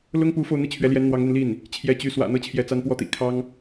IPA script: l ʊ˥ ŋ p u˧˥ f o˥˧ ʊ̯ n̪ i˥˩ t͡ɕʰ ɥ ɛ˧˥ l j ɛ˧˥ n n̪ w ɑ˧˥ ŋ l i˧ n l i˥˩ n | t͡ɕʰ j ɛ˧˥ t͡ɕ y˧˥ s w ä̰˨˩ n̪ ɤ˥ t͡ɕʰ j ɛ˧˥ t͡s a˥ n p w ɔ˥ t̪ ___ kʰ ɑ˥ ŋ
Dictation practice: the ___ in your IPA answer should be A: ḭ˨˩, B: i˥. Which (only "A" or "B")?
A